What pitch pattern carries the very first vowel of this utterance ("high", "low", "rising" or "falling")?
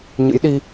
rising